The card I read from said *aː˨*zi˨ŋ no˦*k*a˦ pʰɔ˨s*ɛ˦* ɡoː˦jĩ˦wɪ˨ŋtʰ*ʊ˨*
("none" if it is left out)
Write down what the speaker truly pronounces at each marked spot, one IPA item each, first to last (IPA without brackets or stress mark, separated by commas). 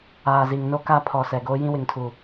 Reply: aː˨, k, ɛ˨, u˨